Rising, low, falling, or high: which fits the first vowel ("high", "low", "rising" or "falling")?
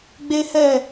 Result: high